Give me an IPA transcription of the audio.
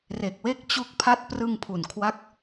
r e˨˩ k̚ w e˦˥ k̚ t͡ɕ u˦˥ k̚ pʰ a˥˩ t̚ p r ɯ˧ ŋ pʰ u˨˩ n kʰ w a˥˩ k̚

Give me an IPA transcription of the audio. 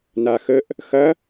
n a x ə ʔ | x ɐ

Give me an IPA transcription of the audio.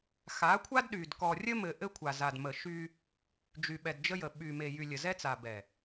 x a˨˦ kʷʰ a˦ d ɗ y˨ d k ɔ˨ rʲ ə˦ m ɘ˨ ʔ ɘ˦ kʷʰ a˨ z a˨ d m ə˨ ʃ y˦ | d͡ʒ y˨ ɓ ɛ˨ d d͡ʒ ə˦ j ə˨ ɓ y˨ m e˨ j y˨ lʲ ə˨ z ɛ˦ t͡s a˨ b ɛ˨

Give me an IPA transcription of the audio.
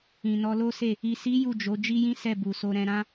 ĩ˨ n ɔ˧ l o˦ s e˦˨ | i˨ s i˨˦ j u˦˨ d͡ʒ o˨˦ d͡ʒ i˦ j ĩ˦ s ɛ˦˨ b u˨ s o˧ ɾ ɛ̃˧ ɾ ã˦

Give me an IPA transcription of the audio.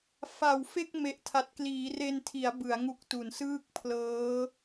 f a˨˩ w f e˥˩ k̚ m e˨˩ ʔ tʰ a˨˩ t̚ k l iː˩˦ r e˧ n tʰ i˩˦ a̯ b ɯ˩˦ a̯ ŋ u˦˥ k̚ t u˨˩ n s ɯː˥˩ k̚ pʰ l ɤː˦˥

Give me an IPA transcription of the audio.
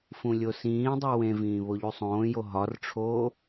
f ũ lʲ o s ĩː dˤ u w ẽ v ĩː β o ʎ u sˤ õː j o ɦ ɒ r ʈ͡ʂʰ oː

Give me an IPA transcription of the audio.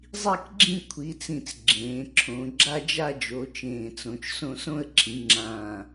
zˤ i˦˨ k ɡ͡ǁ ĩ˦˨ kʷʰ i˩˧ t͡s ĩ˨˩ t͡s ɡ͡ǁ ẽː˩˧ ǁʰ õ˩˧ ɡ͡ǁ a˦˨ d͡ʒ a˦˨ d͡ʒ o˩˧ t͡ʃ ẽː˨˩ t͡s õ˩˧ t͡ʃ s õ˦˨ s õ˦˨ ə̯ ǁʰ ĩ˩˧ ŋ͡ǁ ãː˨˩

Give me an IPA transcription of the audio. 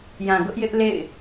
j ã˨ ɡ ʊ˦ ʔ j ɪ˦ ʔ l ḛ˦˨ ɪ̯

